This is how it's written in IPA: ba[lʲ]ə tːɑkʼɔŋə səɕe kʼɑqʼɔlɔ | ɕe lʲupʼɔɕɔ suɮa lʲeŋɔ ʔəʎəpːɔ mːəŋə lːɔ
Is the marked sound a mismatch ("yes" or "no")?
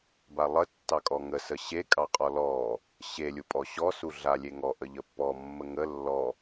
yes